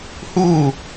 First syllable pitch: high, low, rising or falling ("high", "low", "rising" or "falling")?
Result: falling